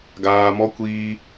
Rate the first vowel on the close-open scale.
open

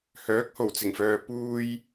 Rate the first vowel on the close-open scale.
mid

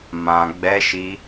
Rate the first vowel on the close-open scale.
open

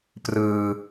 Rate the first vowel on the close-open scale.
close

